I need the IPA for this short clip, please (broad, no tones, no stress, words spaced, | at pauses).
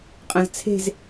qʼɐ̃zt͡sʰe̤z